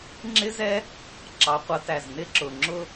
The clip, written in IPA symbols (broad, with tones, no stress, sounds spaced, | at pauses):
ŋ͡ǁ ɪ˥ z ɛ˥ | ǁ ɑ˩˥ qʷ ʌ˩˥ t æ˨˩ z n ɪ˥ ǁ ʊ˨˩ ŋ͡ǁ ʊ˥